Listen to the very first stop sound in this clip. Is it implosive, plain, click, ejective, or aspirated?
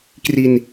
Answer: plain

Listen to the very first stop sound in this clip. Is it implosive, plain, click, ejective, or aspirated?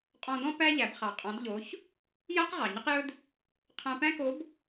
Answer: ejective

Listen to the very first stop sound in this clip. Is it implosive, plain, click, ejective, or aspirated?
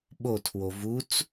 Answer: implosive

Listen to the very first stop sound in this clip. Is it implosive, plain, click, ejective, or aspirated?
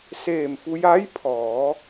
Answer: aspirated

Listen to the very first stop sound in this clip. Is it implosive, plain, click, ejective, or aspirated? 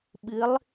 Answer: implosive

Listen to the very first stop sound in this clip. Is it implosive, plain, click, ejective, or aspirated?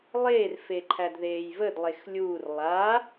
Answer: click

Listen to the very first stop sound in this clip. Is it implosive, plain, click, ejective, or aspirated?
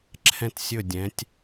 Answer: click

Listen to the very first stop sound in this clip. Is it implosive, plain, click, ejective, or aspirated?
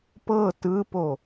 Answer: plain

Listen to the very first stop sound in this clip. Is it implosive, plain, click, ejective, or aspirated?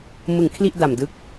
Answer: aspirated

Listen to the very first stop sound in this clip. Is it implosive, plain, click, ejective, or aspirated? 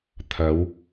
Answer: aspirated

